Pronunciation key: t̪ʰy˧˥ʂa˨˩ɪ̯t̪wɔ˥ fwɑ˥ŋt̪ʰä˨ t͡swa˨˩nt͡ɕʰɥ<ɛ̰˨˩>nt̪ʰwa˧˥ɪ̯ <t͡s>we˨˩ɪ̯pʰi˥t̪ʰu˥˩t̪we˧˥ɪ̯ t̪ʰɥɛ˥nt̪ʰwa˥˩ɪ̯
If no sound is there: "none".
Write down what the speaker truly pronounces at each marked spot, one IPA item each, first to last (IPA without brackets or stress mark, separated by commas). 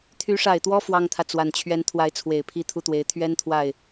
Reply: ɛ˧˥, t͡sʰ